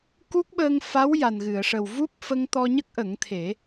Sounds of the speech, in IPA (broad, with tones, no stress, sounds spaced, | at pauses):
k u˦˥ k̚ ɓ əː˧ ŋ f a˧˥ w j a˨˩ n ɣ ɨ˨˩˨ ə̯ ʂ ə˨˩ w v u˦˥ p̚ f ə˧ ŋ t̪ ɔ˧ ɲ ə˦˥ k̚ ʔ ə˨˩˦ ŋ t̪ʰ e˨˩˦